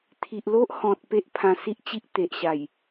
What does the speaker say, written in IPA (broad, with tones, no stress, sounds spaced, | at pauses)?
t̪ʰ i˨ ʔ l o˦ ʔ h ɔ̃˨ t̚ p e˦ ʔ pʰ ã˧ s i˦ ʔ t͡ɕ i˦ ʔ t̪ e˨ ʔ ɕ a˨˩ j